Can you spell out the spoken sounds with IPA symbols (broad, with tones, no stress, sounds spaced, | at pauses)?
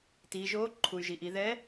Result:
t iː˩˧ ʒ oː˧˥ ǃʰ u˩ y̯ ʒ i˩ ʔ i˩˧ ð ɛ˧˥